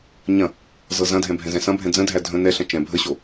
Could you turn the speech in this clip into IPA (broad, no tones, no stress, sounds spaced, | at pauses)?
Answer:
ɲ ɐ̃ | z ɤ z ɐ̃ dʱ ɛ̃ bʱ ɛ̃ z ɛ̃ s ɐ̃ bʱ ɛ̃ d͡z ə̃ dʱ æ dʱ ə̃ n ɛ ɬ ɐ̃ t͡ʃ ɛ̃ bʱ ə ɕ o